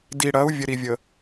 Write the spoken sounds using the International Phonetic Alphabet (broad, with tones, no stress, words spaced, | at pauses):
di˨ɽɐ˨˦u̯ vʲɘ˨ɾi˨vʲə˨